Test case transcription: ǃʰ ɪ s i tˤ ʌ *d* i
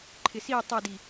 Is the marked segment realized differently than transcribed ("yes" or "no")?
no